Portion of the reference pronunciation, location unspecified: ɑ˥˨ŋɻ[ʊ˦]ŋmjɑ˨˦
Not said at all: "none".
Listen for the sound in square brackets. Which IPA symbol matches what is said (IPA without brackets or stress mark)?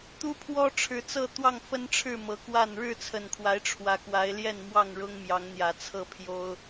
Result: ʊ˦